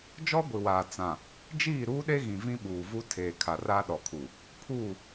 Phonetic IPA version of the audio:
d͡ʒ ɔ˦ ɡʷ i˨ w aː˨ t͡s ã˨ | d͡ʒ iː˦˨ ɾ uː˦ ɗ e˦ ɣ ĩ˨ v ĩ˦ ɓ uː˨ v u˦ tʰ eː˨ kʰ a˨ r a˦ ɗ ɔ˨ kʰ u˨ | pʰ uː˦˨

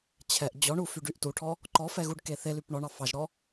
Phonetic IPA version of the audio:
t͡ɕʰ ɛ ʔ d͡ʑ ɔ ɳ u f y ɖ y ʔ t u ʈʰ ɔ | ǃ ɔ f ɛ ɣ u ɖ k e θ e l y p ɳ ɔ ɳ ɑ f ɑ ʒ ɾ ɔ

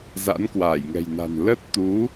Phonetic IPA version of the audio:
z a̰˧˥ n k w aː˧˩ j ŋ ɛ̤˨˩ j n a̤˨˩ n l ə˦˥ t̚ t̪ u˨˦

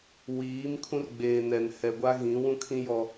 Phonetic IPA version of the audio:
w iː˨˦ m kʰ ũ˦ r ɡ͡b eː˨ n ɛ˨ n h ɛ˨ ɡʷ a˦ ɣ ĩ˨˦ w ũ˦ kʰ ĩ˦ j ɔ˦

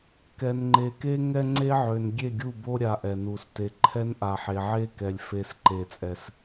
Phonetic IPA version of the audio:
k ɛ˨ n ŋ͡ǃ e˨ k e˦ ŋ ɛ˦ ŋ͡ǀ e˦ ʕ ø˨ n ɡʲ e˦˨ ɡʲ u˦˨ b o˦ ɾʲ a˨ ʔ ɛ˨ n u˨ s t e˦ ǃʰ ɛ˦ n ʔ a˨ ħ e˨ ʕ e˦ k ɛ˨ lʲ f e˦ s ǃ e˦˨ t͡sʼ ɛ˦ s

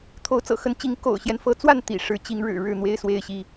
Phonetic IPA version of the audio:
t̪ʰ o˨˦ ʊ̯ t͡s ɤ̰˨˩ x ə˨˦ n t͡ɕ i˨˦ ŋ k o̰˨˩ ʊ̯ ɕ j ɛ˦ n f ɤ˨˦ t͡s w a˥˨ n t̪ ḭ˨˩ ʂ ɻ̩˨˦ t͡ɕ i˨˦ ŋ ɻ ɻ̩˨˩ ɻ ɻ̩˥˨ n̪ w e˦ ɪ̯ s w e˥˨ ɪ̯ ɕ i˥˨

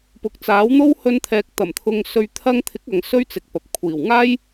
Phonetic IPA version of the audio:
p ʊ˨ k̚ t͡s aː˨˥ w n̪ o˥ w h ɵ˧ n t̪ʰ ɛː˨ k̚ t̪ ɐ˨˩ m t̪ʰ ʊ˧ ŋ s ɵ˧ ɥ t̪ʰ ɐ˧ ŋ t̪ʰ ɪ˨˥ k̚ ɐ˨ ŋ s ɵ˥ ɥ t͡s ɪ˨ k̚ p ɐ˨ p̚ kʷʰ iː˨˩ w ŋ aː˥ j

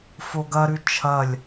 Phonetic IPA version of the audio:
f o ɡ ɐ ɾ ʉ t͡ʃʰ ɐ lʲ

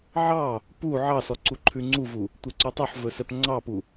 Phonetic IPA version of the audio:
ʕ ɑ | p u ʕ ɑ s ɔ ǀ u ǃʰ ʉ ŋ͡ǀ u v u | tʷ ɛ ǀ ʉ tˤ ɵ ħ v ɵ s ɛ p ŋ͡ǀ ɑ p u

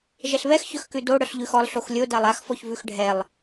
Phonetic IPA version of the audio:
ʒ ɛ ɬ β ɛ x ç œ x k ʉ d o ɽ œ ɬ ʎ ʉ x ɔ lˠ ɬ o x lʲ o d a lˠ a x f ɔ ç v ʉ x ɖʱ ɛ lˠ

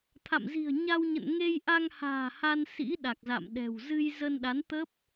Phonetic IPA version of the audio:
t̪ʰ a̰˧˨ m z i̤˨˩ ə̯ ɲ a˧ w ɲ ə̰˧˨ n ŋ e˧ j ʔ a˧ ŋ h a̤ː˨˩ h a˧ n s ḭ˧˥ ɗ a˨˩ k̚ z a̰˧˨ m ɗ ɛ̤˨˩ w z ɨ˧ j z ə˧ n ɗ a˨˦ n t̪ ə˦˥ p̚

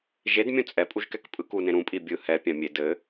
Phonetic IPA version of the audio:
ʒ e d mʲ ũ t͡sʼ ɛ pʼ u ʒ k ɛ k pʼ ɯ k u n ẽ ɾ ũ pʼ i bʲ ɯ h ɛ pʲ ã mʲ e d ɘ

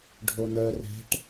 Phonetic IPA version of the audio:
ɖʱ o n̪ œ r ɛ̤ ʈ

